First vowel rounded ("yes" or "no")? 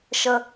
no